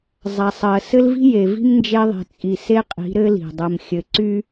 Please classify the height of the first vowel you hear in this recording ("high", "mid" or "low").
low